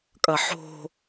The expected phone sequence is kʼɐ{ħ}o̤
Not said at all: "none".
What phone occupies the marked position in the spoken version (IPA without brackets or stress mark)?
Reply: ħ